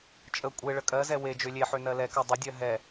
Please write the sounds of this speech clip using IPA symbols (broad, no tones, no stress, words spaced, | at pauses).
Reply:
t͡ʃʼə kʷʼeɭə kʼɜzɛ we d͡ʒølʲeħø nɜlɛkɜ dˤədʲɜ ɦɛ